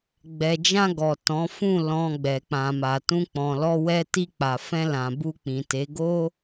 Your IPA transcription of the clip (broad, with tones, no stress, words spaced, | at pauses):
ɡ͡bɛ˨d͡ʒã˧ ɡɔ˨ tɔ̃˨˦fũ˦˨ lɔ̃˨ ɡ͡bɛ˨k͡pã˨ma˨tũ˧ k͡pɔ̃˨lɔ˧wɛ˧ti˧ k͡pa˨fɛ̃˧lã˨ bu˧k͡pĩ˨te˨˦ ɡo˦